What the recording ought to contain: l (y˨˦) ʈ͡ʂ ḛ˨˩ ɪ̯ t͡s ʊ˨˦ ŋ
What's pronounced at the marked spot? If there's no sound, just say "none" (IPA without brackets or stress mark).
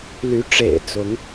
y˨˦